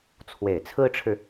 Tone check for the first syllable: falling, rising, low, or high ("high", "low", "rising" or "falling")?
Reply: low